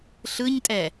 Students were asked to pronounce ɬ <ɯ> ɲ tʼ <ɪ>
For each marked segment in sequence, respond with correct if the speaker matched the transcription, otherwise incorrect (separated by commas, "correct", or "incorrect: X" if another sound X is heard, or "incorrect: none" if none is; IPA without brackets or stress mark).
correct, incorrect: ɛ